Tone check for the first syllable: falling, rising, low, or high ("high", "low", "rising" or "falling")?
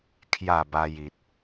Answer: falling